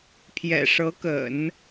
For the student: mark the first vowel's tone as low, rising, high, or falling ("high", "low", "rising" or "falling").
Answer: low